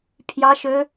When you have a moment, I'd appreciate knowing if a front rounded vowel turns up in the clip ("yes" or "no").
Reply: yes